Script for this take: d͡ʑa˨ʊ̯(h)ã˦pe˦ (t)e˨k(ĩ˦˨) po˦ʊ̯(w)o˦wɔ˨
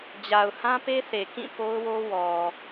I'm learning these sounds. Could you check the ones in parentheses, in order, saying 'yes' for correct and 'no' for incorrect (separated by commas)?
yes, no, yes, yes